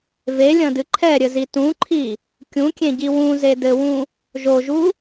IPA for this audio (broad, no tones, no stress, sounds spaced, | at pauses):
v e lʲ ɐ̃ d ɨ ǃʰ ɛ ɾʲ ɘ z i t ũ ǃʰ i | kʲ ũ kʲ ẽ ɟ i w ũ z e d ɘ w ũ | ʒ o ʒ u